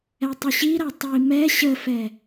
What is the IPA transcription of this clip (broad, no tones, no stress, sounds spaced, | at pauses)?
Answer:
ɛ tˤ ʏ ɕ i ɾ a tˤ i m ɛ ɕ ə f ɛ